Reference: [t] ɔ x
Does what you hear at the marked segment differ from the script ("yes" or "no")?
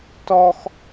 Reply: no